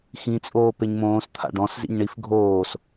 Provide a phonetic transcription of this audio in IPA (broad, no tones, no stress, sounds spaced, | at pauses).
x ĩ t͡sʼ oː p e ɲ m õː s t̪ʰ a̰ ɖ ɔ̃ s z ḭ ɲ ɳ i f ɡʱ oː s